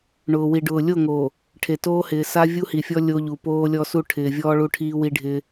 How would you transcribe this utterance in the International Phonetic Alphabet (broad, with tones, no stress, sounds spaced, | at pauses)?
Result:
ɳ ʊː˨ w i˨ ɖ ʊː˨ lʲ o˦˨ ŋ o˨ | ʈʰ e˨ t oː˦ h ɪː˨ s a˦ vʲ u˦ h i˨ fʲ ɔ˦ lʲ o˦ ʎ u˨ p oː˦ lʲ ɔ˦ s u˦ ʈʰ ɪː˨ vʲ ɔː˦ ɭ u˦ ʈʰ iː˦ w i˦ ɖʱ ɪ˦